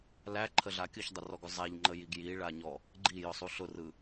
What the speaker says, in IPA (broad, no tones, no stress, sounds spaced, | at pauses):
l æ ǃʰ ə ɮ a kʲ ɯ ç dˤ ə r ɔ ɡ ʊ zˤ æ ʎ ŋ͡ǃ ə j i ɡ j i ɭ a ɲ ɔ | ɡ͡ǃ i j ʊ sˤ u ɬ ʊ r ɯ